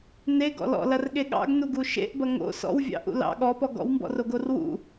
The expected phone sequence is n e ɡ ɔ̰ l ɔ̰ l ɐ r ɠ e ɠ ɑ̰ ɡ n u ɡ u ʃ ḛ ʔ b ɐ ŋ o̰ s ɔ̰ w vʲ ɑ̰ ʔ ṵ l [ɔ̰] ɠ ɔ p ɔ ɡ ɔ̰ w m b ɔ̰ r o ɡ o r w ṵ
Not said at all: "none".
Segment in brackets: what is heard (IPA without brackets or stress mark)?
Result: ɑ̰